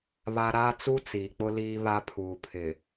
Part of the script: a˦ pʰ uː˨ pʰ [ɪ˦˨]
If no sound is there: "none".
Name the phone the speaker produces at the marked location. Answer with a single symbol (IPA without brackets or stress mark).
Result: ɪ˨